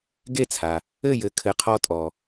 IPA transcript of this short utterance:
ɡe˥˩t͡sʰa˩ | ɘ˥˩jɘ˩˥ kʰɘ˩˥qʰɔ˧tʼɔ˩

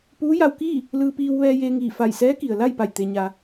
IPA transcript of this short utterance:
puː˧˥ja˧wkiː˥˨ | lɯː˧piː˧w ʋɛː˧jeː˧ŋiː˧˩ fa˧˩jsɛː˧˥ki˩ə̯ la˥˨jpa˧˩j t̪e˩ɲa˩

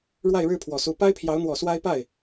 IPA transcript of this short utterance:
ɻwa˥˧ɪ̯ɻɻ̩˥˩pʰwɔ˨˩su˧˥ pa˥ɪ̯pʰjɑ˧˥ʊ̯n̪wɔ˨˩ swa˥ɪ̯ pa˥˩ɪ̯

